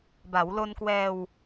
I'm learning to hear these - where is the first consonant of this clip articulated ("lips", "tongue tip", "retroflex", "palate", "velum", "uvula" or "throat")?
lips